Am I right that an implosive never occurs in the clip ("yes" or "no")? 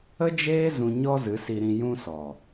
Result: yes